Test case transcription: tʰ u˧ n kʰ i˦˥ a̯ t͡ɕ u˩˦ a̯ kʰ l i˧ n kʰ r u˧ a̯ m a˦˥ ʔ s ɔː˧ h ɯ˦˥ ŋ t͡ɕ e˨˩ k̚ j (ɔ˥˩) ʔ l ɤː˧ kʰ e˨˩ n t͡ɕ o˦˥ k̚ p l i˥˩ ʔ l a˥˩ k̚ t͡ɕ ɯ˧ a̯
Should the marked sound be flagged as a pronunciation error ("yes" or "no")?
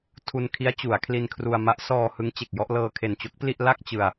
no